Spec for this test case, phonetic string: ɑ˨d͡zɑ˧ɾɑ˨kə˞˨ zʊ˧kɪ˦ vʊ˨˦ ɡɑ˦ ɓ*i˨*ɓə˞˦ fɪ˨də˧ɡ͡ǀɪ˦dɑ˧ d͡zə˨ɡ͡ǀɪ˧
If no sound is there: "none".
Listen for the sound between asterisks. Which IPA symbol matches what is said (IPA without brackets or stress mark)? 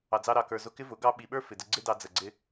i˨